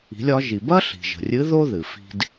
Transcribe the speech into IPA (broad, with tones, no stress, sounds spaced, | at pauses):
i̤˩˧ lʲ ɒ˩˧ ʒ i˩ b ɐ˥ ɬ i̤˩ ʒ ə̤˩ rʲ ɨ˧˥ ð o˥ ð ɨ˩ f i̤˧ d